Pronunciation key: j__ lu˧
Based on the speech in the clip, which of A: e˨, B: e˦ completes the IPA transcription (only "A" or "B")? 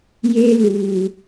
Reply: B